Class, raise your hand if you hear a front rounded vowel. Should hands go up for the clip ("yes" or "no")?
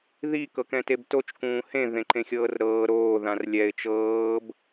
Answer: no